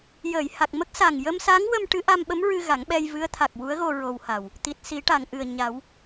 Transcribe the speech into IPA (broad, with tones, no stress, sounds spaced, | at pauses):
j əː˨˩˨ j h a˨˩ k̚ m ə˦˥ k̚ s a˨˩ ŋ j ə˧ m s a˧˥ ŋ w ə˧ m ʈ ɨ˧˥ ʔ a˧ m ɓ ə˧˥ m ɹ ɨ˧ ɣ a˨˩˦ ŋ ɓ ɛ˧ j v ɨ˧˥ ə̯ t̪ʰ a˨˩ k̚ w u˧˥ ə̯ ɣ o˧ ɹ o˧ w h a˨˩ w | t̪ i˨˩ t̚ s i˨˩˦ ʈ a˨˩˨ ŋ ʔ ɨ˨˩ ə̯ ɲ a˨˩˦ w